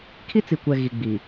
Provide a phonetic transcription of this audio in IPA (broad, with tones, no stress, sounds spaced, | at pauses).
kʰ i˦ t͡s i˨ kʷ ɛ˨ ɣ i˨ ɡ͡b i˨